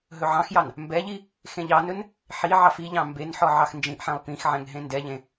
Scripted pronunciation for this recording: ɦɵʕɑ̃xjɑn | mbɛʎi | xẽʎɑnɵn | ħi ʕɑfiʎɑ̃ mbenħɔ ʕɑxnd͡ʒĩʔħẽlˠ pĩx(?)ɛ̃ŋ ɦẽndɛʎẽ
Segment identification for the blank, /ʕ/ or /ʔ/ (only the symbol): ʕ